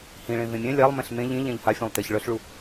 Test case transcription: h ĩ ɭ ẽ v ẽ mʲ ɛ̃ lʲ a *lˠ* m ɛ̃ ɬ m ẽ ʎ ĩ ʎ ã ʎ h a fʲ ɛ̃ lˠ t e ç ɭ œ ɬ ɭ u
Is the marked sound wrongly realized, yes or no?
no